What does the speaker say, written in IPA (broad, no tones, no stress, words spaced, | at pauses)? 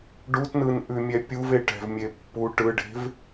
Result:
ɖutnɯnʔʉmʲɛ pʲuve ʈɛ̤vmʲe pːu ʈɯɖe̤v